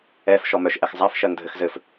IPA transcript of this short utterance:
ɛ f ʃ ɔ m œ ʃ ʔ ɛ x zˤ a f ʃ ɜ ŋ dʱ ɘ x z ɘ f

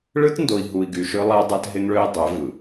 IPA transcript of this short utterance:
ɭ ɯ˦ t n d o˨ i̯ ɦ u˨ i̯ ɡ y˨ ʃ ø˦ lˠ æ˦ dˤ æ˦ t ɦ e˦ ŋ ɭ ø˦ i̯ dˤ ø˨˦ v ɯ˨

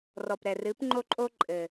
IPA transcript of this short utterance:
r ɔ˨ p ɾ ɛ˨ r ɨ˨˦ p ŋ͡ǃ o˦ ǃʼ o˦ ǃʼ ɘ˨

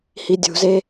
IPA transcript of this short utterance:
h i dʲ ṳ z e

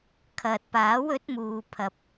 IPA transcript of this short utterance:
kʰ ɐ˨ t̚ p aː˨˥ w ɵ˨˥ t̚ m uː˨ pʰ ɐ˨ p̚

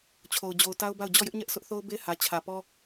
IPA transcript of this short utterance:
t͡ɕʰ o˨ ʊ̯ d͡ʑ o˨ ʊ̯ t a˦ ʊ̯ b a˦˨ ʊ̯ d͡ʑ ɔ˦˨ j ɪ˦ ʔ ɲ ɛ˦ ʔ s ʊ˦ ʔ θ o˦ ʊ̯ b e˦ h ä˨ t͡ɕʰ ä˨ p ɔ˦

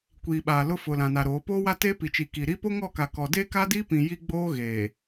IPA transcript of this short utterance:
kʷ iː˨ ɓ aː˨ l ʊ˦ f ʊ˨ l ã˨ n a˨ ɾ oː˨˦ p oː˦ w a˦ t eː˦ p i˨ t͡ʃ i˨ k i˨ ɾ i˦ p o˦ ŋ ɔ˦˨ k a˨ k ɔ˨ d e˦ k a˦ d iː˦ p ĩ˨ j i˦ ɡ͡b oː˦ ɣ eː˨

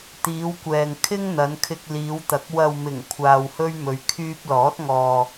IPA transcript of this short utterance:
t̪ iː˨˧ w kʷ ɛː˨ ŋ kʰ ɪ˥ ŋ n̪ ɐ˨˧ n kʰ ɪ˧ k̚ l iː˨˧ w t̪ ɐ˨˥ k̚ w ɐ˨ w m ɪ˨˩ ŋ kʷʰ aː˧ w h ɵ˥ ɥ m ɵ˨˧ ɥ kʰ yː˧ p̚ l ɔː˨˥ t̚ ŋ ɔː˨

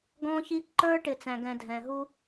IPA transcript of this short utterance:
ɡ ɔ̃˦ ç i˦ ǃ ə˞˦ ʈ ɪ˨ t͡s æ̃˨ ɡ ɛ̃˨ dʱ ɛ̃˨ ɦ u˦

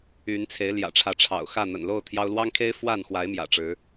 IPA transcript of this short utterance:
y˨˦ n t͡sʰ e˨˦ ɪ̯ l j ä̰˨˩ ʈ͡ʂʰ ä˨˦ ʈ͡ʂʰ ɑ̰˨˩ ʊ̯ x ä˥˨ n̪ ə̰˨˩ n l o˥˨ ʊ̯ t̪ʰ j ɑ˦ ʊ̯ l w ɑ˦ ŋ kʰ e˦ ɪ̯ f w a˥˨ n x w a˨˦ ɪ̯ m j ä̰˨˩ ʈ͡ʂ ɻ̩˨˦

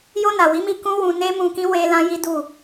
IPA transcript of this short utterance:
j o˧ n a˨ w i˨˦ m i˧ k ũ˦ w ũ˧ n e˦ m ũ˧ k ĩ˦ w e˦ l ã˦ j i˦ d u˦˨

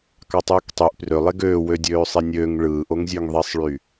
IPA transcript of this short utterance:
k ɑ tˤ ɯː k tˤ y ʔ p r ø lˠ e ɡ øː w ø dʲ øː sˤ i nʲ øː ŋ ɭ ɯː ʔ o ŋ zʲ ø ŋ ðˤ e sˤ ɭ y

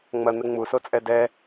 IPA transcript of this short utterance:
ŋ͡m ɐ n̪ ɘ ŋ͡m u s o t͡sʼ ɛ d ɛ

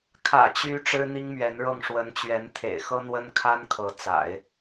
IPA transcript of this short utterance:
kʰ ä̰˨˩ t͡ɕ y˧˥ ʈ͡ʂ ɻ̩˥ n̪ i˥ ŋ m ɥ ɛ˧˥ n ɻ ɤ˥˩ ŋ ʂ w ə˧˥ n t͡ɕ ɥ ɛ˧˥ n t̪ʰ ḛ˨˩ ɪ̯ x ɤ˥ n̪ w ə˥ n kʰ a˥ n kʰ ɤ˧˥ t͡s a̰˨˩˦ ɪ̯

